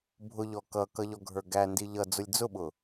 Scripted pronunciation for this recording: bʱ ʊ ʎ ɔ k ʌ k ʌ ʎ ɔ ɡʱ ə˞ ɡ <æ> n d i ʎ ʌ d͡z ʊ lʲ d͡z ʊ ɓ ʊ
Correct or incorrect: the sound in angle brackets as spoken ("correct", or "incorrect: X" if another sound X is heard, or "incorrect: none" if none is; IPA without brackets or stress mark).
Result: correct